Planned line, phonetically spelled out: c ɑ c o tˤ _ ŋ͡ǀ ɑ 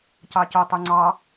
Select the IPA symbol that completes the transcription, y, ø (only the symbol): y